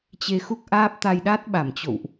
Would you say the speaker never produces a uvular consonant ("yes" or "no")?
yes